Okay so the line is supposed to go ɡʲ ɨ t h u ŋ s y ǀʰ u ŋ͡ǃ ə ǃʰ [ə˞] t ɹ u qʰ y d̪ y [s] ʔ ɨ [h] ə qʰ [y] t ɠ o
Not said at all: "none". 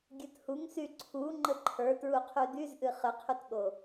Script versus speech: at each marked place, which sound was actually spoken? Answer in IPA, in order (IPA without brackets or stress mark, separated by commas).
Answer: ə˞, z, χ, y